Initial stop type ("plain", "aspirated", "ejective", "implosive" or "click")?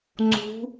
click